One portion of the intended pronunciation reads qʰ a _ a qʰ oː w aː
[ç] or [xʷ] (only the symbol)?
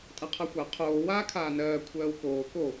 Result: xʷ